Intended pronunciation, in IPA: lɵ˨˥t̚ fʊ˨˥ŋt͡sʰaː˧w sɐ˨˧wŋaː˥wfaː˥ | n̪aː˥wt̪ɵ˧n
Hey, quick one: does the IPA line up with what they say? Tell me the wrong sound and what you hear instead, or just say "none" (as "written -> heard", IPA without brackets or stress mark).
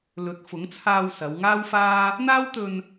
none